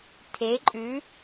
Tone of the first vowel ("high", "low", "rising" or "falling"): rising